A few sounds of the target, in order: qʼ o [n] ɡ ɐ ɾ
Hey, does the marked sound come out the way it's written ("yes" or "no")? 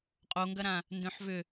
no